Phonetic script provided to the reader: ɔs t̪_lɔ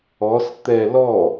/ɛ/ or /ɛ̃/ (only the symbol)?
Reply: ɛ